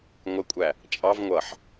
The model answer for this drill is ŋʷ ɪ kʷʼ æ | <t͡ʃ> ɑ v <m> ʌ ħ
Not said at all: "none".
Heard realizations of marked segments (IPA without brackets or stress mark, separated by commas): t͡ʃʼ, ŋʷ